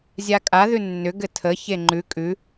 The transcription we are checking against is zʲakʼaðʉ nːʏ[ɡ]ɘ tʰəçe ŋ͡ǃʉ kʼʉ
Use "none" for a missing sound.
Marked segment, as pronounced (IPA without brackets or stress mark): ɡ